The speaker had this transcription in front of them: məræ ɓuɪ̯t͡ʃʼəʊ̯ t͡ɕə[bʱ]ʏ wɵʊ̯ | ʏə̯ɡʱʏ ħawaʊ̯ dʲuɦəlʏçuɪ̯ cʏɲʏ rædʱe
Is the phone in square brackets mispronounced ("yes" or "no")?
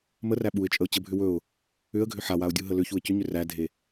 no